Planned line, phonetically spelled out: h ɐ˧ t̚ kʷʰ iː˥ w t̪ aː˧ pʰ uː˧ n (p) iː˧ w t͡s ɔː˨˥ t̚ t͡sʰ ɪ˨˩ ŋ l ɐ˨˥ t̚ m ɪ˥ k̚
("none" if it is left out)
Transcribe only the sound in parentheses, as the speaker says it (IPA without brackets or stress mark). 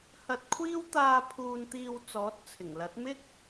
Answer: t̪